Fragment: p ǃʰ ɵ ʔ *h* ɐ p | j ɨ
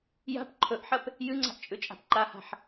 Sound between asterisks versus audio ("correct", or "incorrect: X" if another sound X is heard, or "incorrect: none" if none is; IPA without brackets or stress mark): incorrect: ħ